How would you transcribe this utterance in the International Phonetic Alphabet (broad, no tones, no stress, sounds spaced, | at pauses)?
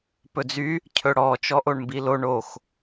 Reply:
p ɵ d͡z y | cʰ ɵ ɽ ɔ t͡ʃ ɔ ʔ o ɳ m b i l o ɳ o x